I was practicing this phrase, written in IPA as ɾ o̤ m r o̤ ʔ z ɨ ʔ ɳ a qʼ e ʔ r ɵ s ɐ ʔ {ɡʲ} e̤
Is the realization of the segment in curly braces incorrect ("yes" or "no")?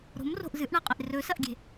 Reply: no